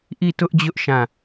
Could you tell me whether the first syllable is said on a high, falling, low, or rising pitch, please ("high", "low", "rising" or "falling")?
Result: falling